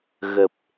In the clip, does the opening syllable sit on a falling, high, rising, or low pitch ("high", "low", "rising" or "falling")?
low